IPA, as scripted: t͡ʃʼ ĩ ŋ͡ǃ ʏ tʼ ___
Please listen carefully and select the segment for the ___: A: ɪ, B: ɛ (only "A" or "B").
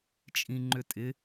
A